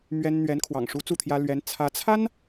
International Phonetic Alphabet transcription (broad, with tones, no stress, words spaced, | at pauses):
mɥɛ˥n n̪ɥɛ˧˥nkʰwɑ̰˨˩ŋʂu˧˥ t͡su˥˩t̪ʰjä˥ lɥɛ˧˥n t͡sʰä˧˥t͡sʰa˥n